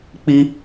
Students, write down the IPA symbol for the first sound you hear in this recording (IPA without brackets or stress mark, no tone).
k͡p